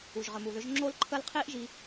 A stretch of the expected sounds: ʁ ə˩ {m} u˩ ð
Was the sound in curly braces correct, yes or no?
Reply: yes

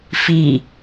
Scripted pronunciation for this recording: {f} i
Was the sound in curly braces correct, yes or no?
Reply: yes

